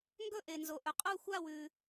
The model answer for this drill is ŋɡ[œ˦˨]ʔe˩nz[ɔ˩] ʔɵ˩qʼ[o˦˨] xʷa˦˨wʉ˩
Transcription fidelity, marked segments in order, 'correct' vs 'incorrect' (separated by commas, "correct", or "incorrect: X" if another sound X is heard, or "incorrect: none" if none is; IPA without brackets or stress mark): incorrect: ɵ˦˨, incorrect: o˩, correct